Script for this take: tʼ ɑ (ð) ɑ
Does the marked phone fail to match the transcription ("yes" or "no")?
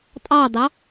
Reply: yes